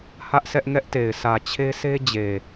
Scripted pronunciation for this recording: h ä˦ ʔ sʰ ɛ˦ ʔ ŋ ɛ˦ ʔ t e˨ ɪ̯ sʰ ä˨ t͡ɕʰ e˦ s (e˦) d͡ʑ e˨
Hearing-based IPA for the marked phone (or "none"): e˦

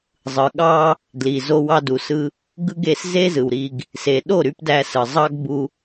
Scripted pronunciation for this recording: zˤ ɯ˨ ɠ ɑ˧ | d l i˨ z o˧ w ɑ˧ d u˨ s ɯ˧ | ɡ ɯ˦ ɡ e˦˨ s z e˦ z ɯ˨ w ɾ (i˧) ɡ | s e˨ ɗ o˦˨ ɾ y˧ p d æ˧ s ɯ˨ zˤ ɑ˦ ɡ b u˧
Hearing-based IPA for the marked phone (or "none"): i˧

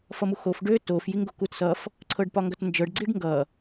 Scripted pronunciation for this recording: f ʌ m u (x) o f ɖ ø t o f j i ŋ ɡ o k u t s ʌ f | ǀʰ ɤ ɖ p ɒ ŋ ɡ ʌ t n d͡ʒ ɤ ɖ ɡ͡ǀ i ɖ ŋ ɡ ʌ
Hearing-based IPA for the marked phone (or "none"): x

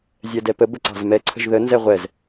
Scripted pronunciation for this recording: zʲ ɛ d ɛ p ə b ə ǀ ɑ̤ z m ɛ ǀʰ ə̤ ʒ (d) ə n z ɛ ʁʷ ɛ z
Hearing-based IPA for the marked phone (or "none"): ð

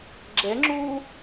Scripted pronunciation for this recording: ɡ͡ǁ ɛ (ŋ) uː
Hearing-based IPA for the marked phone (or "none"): ŋ͡ǁ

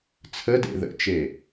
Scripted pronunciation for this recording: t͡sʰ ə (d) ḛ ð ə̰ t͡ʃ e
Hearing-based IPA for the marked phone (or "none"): d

